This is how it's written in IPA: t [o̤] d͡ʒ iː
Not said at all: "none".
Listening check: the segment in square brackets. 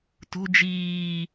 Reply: o̤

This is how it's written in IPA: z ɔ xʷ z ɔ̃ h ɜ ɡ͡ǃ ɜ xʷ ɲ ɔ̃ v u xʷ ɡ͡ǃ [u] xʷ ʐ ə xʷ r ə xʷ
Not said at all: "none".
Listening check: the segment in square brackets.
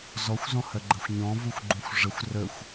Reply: ũ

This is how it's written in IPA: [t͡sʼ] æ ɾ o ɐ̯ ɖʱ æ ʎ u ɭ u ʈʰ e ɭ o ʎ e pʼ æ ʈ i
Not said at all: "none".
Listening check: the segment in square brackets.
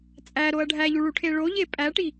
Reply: t͡sʼ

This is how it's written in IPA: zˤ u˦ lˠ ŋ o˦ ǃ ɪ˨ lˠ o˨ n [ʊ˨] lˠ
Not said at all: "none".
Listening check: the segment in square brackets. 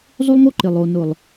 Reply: ʊ˨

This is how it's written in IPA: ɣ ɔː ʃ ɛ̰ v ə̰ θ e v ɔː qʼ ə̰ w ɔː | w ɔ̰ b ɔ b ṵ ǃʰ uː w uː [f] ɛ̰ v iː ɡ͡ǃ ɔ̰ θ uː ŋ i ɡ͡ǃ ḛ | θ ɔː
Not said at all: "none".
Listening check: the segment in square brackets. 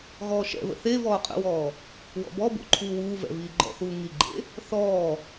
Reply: v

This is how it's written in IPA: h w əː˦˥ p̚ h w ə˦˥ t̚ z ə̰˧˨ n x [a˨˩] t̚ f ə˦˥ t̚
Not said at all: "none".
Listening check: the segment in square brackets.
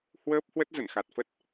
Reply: a˨˩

